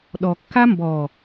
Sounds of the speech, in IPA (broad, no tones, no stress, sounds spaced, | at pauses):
ɗ ɔ kː a m b ɔ